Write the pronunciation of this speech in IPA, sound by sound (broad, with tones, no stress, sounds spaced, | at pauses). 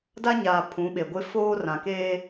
d a˦ ɲ aː˨ pʰ ũ˨˦ ɓ e˨ ɡʷ ɪ˦ f oː˦ r ã˨ k eː˦